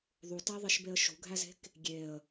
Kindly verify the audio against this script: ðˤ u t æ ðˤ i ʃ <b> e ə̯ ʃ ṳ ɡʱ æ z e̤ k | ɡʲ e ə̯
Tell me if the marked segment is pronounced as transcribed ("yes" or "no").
yes